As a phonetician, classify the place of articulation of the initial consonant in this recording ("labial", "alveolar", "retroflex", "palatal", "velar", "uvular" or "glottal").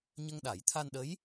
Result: palatal